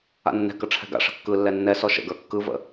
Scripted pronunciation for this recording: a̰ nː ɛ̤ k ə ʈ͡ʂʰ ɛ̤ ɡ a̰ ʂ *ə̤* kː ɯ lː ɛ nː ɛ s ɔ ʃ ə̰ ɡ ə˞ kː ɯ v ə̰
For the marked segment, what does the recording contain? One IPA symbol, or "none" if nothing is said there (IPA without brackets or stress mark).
ə̤